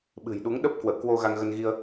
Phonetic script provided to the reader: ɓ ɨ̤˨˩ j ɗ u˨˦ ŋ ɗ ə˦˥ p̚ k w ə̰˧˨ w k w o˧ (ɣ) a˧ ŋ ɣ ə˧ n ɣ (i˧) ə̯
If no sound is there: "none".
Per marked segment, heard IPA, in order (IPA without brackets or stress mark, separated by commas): ɣ, i˧